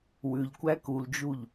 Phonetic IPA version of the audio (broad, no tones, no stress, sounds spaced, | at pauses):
w ʉ ʎ kʷ æ k u l d͡ʒ u ʎ